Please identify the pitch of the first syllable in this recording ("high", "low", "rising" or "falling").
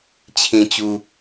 low